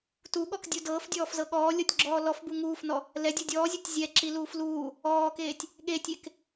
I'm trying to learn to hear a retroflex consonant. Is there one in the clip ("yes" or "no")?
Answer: no